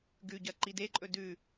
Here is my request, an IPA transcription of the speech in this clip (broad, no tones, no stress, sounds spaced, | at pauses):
ɡ ʉ ɟ ɐ ǃ i d e ǃʼ ɵ d ʉ